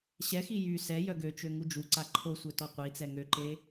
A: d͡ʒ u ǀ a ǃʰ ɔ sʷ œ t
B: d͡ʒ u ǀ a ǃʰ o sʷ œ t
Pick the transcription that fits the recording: B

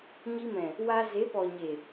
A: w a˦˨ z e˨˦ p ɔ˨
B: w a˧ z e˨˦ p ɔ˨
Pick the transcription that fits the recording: B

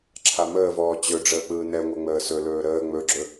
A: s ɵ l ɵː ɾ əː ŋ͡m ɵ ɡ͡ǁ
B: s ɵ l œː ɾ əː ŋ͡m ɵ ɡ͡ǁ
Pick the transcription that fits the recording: A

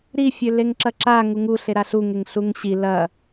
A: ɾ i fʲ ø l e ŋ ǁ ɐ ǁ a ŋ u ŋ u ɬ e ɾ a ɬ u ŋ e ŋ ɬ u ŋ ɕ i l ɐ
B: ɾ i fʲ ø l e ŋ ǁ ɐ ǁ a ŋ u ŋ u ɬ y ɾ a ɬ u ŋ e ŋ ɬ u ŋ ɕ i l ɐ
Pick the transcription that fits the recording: A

